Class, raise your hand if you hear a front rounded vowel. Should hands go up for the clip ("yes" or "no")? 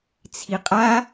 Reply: no